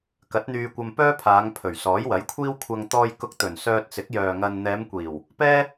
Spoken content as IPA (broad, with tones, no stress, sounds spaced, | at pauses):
k ɐ˨˥ t̚ n̪ yː˧ kʷ ɐ˧ m p œː˥ pʰ aː˨˧ ŋ pʰ ɵ˨˩ ɥ s ɔː˨˥ j w ɐ˨˥ j kʷʰ iː˥ w kʷʰ ɐ˧ ŋ t̪ ɔː˧ j k ʊ˧ k̚ t̪ ɵ˨˩ n s œː˧ t̚ t͡s ɪ˨˥ k̚ j œː˨ ŋ ɐ˧ n n̪ ɛː˨˧ m kʷ iː˨˩ w | p ɛː˥